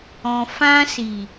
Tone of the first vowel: low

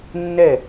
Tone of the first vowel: falling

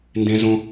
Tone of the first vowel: high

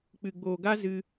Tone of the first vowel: low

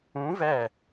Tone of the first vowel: rising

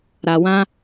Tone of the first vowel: low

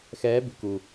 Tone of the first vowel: rising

